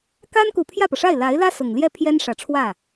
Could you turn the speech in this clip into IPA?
ka˥n ku˨˩pʰjä˥˩pɤ˩ʂa˥˩ɪ̯ la˧˥ɪ̯lä˥ sʊ˨˩ŋ ljɛ˥˩pʰjɛ˥nʂä˨˩ ʈ͡ʂʰwä˥˩

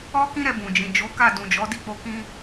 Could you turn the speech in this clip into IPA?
ɔ˦kĩ˦ɾɛ˧ bũ˨d͡ʒĩ˨ d͡ʒo˨˦ka˦˨ dũ˨d͡ʒɔ˨˦ di˦˨k͡po˧ kĩ˦

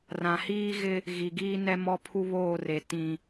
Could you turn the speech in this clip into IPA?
rã˨hiː˦ ɣɪ˦ | ɣi˨ɡiː˦nɛ˦ mɔ˦pʰu˦βoː˦˨re˨ tĩ˨

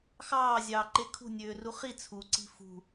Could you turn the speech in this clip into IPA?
xɑːzʲɑːǃe kʰṳnʲøːru χi t͡sʰuǀi̤ fṳ

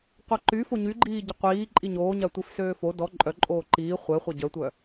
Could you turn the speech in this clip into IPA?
qʷaǃy foɲyɡ͡ǃiː ɟəqʷiː ǃʼiɲoːɲa tʷifsøːfo dɔ ǃʼœǃʼoː ǃiː χʷɛχʷa ɟœtʷœ

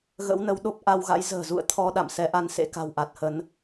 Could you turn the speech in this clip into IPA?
ɣə̰˧˥wnə˨˦w ɗo˦˥p̚ʔa˧wɣa̰˧˥j zə̤ː˨˩zṵ˧˨ə̯ t̪ʰɔ˧ ɗa̰˧˨msɛ˨˦ʔa˧n sḛ˧˥ka̤˨˩wʔa˨˩t̚hə˨˦n

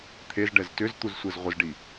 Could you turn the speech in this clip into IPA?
t̪ʰezɖɛz tʏzt̪uzsʷɛz ʁʷəzɖi

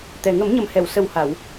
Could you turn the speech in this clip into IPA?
t̪ɛ˨˩ ŋə˨˩˦mɲə˨˩mhɛ˨˩˨w sə˨˩wha˨˩˨w

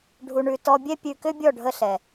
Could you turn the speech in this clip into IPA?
ɖʱu˨ɳʉ˨ tɔ˧bʲɛ˦pʲʉ˧ kʏ˦bʲɔ˦˨ɖʱə˧ ɬɛ˨

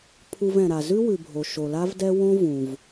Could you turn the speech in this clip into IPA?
pʰu˧vɛ̃˩ɾa˩ zʉ˥wʉ˩bʱo˩ ʃo˩la˥vdɛ˥ wõ˥vũ˩v

